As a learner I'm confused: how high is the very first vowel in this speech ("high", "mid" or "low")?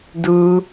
high